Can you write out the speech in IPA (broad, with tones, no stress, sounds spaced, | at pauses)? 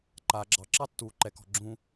ǃ aː˧ ɡ͡ǁ ɑ˧ ǁ ɑ˦ tː uː˨ ǃ ɛ˨ k ɔ̤˨ ɡ͡ǁ ũ˧